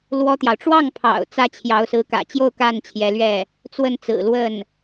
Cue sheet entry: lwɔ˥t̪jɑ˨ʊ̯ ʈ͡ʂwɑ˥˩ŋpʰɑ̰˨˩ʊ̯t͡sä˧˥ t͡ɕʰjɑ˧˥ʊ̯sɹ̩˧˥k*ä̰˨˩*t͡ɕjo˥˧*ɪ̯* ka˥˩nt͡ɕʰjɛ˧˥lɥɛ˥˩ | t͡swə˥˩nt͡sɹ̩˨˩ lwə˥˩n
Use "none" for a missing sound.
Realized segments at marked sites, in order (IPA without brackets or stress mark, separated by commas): ä̰˨˩, ʊ̯